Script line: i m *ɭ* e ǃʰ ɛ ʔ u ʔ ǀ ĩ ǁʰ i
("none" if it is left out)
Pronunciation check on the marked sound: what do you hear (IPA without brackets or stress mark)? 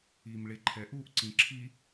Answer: ɭ